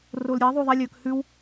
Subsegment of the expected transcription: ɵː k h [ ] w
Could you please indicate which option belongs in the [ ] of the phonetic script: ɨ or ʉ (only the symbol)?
ʉ